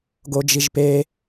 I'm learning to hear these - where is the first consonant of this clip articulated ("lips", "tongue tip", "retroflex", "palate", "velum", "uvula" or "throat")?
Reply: velum